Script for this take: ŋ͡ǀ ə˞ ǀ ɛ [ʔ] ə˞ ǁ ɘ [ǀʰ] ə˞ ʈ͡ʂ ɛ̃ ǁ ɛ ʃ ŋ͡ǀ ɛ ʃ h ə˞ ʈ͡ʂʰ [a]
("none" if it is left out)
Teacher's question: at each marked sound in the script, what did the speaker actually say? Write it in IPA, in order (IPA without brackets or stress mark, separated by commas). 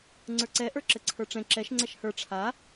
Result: ʔ, ǀʰ, a